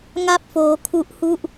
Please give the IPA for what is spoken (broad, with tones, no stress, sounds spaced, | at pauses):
ŋ a˥˩ p̚ f oː˦˥ kʰ u˦˥ ʔ h u˥˩ ʔ